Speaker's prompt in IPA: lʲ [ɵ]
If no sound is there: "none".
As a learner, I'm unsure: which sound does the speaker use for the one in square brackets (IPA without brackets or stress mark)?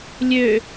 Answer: ø